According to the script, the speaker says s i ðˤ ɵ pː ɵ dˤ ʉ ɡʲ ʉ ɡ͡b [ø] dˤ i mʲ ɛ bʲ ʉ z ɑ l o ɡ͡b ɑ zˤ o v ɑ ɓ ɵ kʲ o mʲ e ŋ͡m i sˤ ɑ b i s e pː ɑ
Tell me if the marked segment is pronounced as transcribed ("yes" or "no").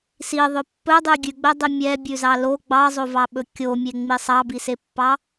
no